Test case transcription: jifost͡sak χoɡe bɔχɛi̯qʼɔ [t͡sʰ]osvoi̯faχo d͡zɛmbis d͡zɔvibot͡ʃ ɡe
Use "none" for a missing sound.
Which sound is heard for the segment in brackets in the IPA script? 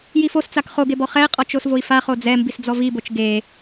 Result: t͡ʃ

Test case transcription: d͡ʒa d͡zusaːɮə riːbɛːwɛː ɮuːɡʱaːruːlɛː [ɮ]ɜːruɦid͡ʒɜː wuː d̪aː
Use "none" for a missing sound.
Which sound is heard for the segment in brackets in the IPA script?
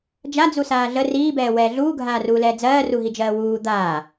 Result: d͡z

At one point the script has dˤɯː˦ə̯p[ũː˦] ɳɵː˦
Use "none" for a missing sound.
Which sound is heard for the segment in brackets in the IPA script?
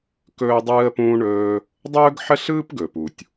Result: ũː˦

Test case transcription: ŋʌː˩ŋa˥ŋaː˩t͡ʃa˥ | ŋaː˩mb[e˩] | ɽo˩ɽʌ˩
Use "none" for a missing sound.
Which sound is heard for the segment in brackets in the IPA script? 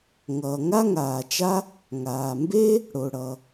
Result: e˥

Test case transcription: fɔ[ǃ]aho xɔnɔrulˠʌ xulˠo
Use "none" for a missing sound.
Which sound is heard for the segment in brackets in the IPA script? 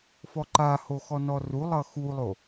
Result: ǃ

